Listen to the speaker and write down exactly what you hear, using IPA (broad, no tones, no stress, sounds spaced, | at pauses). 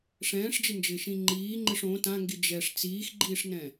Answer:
ʂ ɛ̃ː ʂ d͡ʒ ɪ n d͡ʒ ɪː ʃ ĩ ŋ͡ǃ iː ŋ͡ǃ ɪ ʂ õ t ã ŋ ɡ i d͡ʒ ɛ ʂ t͡s iː x ɡ͡ǃ iː ʂ n ɛ̃